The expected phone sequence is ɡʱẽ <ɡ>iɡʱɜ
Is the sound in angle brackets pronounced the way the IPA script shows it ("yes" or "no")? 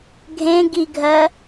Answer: yes